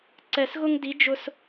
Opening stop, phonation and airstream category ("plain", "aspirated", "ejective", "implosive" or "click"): click